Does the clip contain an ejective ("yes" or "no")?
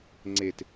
no